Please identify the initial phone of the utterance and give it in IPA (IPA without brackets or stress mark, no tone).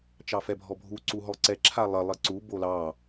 t͡ʃ